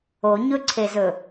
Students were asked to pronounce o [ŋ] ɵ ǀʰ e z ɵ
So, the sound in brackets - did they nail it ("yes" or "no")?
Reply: no